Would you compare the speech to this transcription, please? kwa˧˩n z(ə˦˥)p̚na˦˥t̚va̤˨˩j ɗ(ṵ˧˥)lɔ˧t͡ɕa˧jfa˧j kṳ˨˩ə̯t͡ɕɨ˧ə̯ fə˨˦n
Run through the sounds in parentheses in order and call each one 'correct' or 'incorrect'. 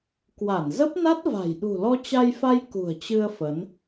correct, incorrect: ṳ˨˩

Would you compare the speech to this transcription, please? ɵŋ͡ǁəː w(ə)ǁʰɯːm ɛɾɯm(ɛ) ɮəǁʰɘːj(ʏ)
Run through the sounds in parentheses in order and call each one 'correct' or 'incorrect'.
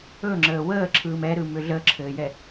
incorrect: əː, incorrect: ʏ, incorrect: ɛ

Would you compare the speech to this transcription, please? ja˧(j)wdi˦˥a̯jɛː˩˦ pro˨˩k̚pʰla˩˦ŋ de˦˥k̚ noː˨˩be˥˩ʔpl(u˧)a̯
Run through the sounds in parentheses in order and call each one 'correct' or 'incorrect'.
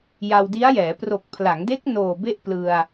incorrect: none, incorrect: ɯ˧

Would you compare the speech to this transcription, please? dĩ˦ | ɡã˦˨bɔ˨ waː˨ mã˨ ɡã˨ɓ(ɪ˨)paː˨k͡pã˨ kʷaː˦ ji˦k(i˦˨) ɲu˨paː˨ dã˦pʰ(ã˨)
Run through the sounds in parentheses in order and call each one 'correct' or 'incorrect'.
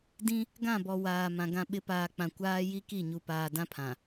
incorrect: ɪ˨˦, correct, correct

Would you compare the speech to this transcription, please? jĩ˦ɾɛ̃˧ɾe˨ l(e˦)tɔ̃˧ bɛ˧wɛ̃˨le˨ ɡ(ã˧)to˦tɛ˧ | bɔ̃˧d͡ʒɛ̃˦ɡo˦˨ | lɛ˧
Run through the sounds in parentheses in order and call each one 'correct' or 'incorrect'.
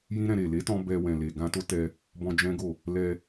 incorrect: e˨˦, correct

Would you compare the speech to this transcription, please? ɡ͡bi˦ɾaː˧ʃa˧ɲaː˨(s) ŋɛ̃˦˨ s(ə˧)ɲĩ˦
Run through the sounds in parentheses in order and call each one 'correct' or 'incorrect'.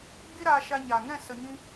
incorrect: none, correct

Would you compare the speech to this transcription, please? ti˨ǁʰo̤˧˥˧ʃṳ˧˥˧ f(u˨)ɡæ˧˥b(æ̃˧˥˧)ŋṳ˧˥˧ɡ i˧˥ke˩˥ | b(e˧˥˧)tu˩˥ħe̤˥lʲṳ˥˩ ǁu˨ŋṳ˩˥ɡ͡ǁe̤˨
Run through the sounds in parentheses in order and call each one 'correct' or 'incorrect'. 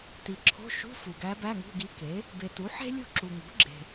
correct, incorrect: æ˧˥˧, incorrect: e˨

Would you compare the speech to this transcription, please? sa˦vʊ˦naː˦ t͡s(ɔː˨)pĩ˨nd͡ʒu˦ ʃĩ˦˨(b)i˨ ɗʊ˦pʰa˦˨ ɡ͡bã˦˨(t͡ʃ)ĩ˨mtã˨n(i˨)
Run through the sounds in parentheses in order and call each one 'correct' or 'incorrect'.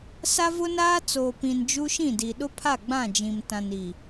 incorrect: oː˨, incorrect: d, incorrect: d͡ʒ, correct

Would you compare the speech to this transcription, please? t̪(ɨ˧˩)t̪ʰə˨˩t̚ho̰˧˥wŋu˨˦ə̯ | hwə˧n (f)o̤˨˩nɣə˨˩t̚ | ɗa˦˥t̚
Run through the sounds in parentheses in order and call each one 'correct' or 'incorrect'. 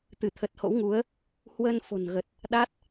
correct, correct

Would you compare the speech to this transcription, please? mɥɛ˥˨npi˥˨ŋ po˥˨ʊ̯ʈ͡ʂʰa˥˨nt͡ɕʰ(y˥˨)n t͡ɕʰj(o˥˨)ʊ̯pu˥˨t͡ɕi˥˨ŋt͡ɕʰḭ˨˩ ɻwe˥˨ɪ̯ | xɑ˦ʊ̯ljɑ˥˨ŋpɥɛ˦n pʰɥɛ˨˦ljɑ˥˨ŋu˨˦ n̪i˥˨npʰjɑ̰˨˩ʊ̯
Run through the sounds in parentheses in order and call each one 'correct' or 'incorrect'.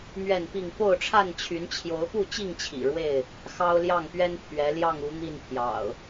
incorrect: y˨˦, incorrect: o˨˦

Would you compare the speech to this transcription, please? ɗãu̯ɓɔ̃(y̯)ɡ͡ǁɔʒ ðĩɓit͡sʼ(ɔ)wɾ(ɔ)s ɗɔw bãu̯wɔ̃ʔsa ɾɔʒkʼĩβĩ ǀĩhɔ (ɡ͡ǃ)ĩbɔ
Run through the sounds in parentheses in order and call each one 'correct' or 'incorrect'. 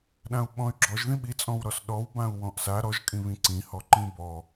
correct, incorrect: ɔ̃, correct, incorrect: ǃ

